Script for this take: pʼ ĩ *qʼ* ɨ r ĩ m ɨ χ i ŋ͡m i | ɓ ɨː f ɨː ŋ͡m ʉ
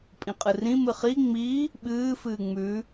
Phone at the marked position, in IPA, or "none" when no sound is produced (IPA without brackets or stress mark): qʼ